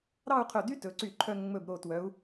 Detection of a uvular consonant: present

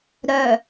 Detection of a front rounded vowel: present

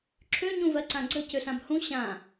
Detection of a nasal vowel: present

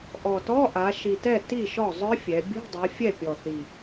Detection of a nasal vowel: absent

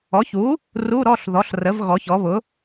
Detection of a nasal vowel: absent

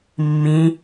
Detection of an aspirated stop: absent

